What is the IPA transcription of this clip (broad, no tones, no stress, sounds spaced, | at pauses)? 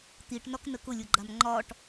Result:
t̪ i ʈ n ɒ k n ə k ʊ lʲ ʊ ɡ͡ǃ a m ŋ͡ǃ ɒ ʈ